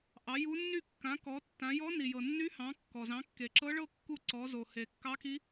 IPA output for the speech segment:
ʔ ɑ˩˥ j u˧˥ nː y˥˨ kː ã˩˥ k ɔ˩˥ tː ã˩˥ j ɔ˧˥ n i˩ j ɤ˩ nː y˧˥ h ɑ̃˩˥ kː ɔ˩ z ɑ̃˩˥ kː e˩ ǁ ɤ˧˥ ɭ ɤ˥˨ kː u˥˨ ǀ ɔ˩˥ z o˩ h e˩ kː ɑ˧˥ k i˧˥

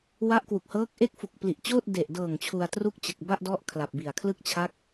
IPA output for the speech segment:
w a˦˥ ʔ k w u˨˩ k̚ h ɤː˦˥ k̚ ʔ e˦˥ k̚ f u˨˩ k̚ p l i˨˩ ʔ t͡ɕ oː˥˩ t̚ d e˨˩ ʔ d ɤː˨˩ ŋ t͡ɕʰ u˧ a̯ t r u˥˩ k̚ t͡ɕ ɯ˨˩ k̚ b a˥˩ ʔ d ɔ˦˥ ʔ kʰ l a˨˩ p̚ b i˨˩ a̯ kʰ l ɯ˥˩ k̚ t͡ɕʰ a˦˥ k̚

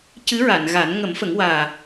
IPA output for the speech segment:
c ɨ˧˥ ɹ a˨˩˨ n ɣ a˨˩˦ n ŋ ə˨˩˦ m f ə˨˩˦ ŋ w aː˨˩

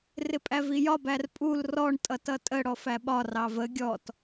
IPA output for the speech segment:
r ɪ pʼ æ v i j ɒ b æ r pʼ u l r ɔ ɳ tʼ ʌ t ʌ tʼ ə ɽ ɔ f æ ɓ ɒ r ɑ v ə ɡʲ ɔ t

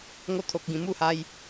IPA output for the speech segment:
ŋ o˧ t̪ʰ o˨ k̚ ɡ ĩ˨˩ m u˥˧ h a˧ j

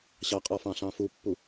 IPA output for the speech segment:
ɕ ɑ qʼ ɔ f ɑ̃ ɬ ɑ̃ f u pː u

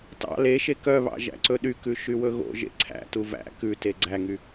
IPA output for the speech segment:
t ɑ̰ l e ʃ e k œ β ɑ̰ ʒ æ̰ ǀ ɵ ɗ y k ʉ ʃ y w ɵ ɣ o̰ ʒ ḛ ǀʰ æ̰ t u v æ̰ k ʉ t e ɡ͡ǀ æ ŋ y

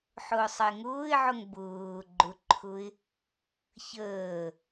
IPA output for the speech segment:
ħ ʊː sˤ ə ɪ̯ ŋ ʊː ɪ̯ ʕ ʊ ŋ b ʊː ɡ͡ǃ ʊ ǃʰ ʊ ɪ̯ | ç əː

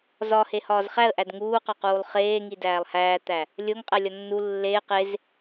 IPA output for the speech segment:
z ɒ h e h ɒː z χ æ ə̯ ʔ æ d ŋ uː q ɒ q uː lˠ χ eː ŋ i d æː lˠ h æː t̪ æ | lʲ o ŋ qʼ æ lʲ ɒ nː u lː eː q e z

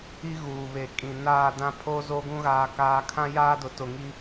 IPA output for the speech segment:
i˦ ɣ uː˨ β e˨ kʼ ĩ˨ n aː˦˨ d ã˦ pʰ oː˦ z o˦ ɡ ũ˦ ɣ aː˦ k aː˦ kʰ ã˦ j aː˦ d ʊ˨ t ʊ˨ ŋ i˦

